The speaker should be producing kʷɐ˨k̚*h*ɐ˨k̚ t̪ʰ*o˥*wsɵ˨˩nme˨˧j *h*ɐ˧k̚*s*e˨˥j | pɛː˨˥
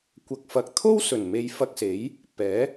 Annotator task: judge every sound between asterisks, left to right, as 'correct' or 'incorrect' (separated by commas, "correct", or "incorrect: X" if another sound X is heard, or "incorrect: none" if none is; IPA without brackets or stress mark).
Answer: incorrect: f, correct, incorrect: f, correct